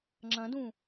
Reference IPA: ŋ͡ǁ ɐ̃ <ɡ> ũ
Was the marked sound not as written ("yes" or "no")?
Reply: yes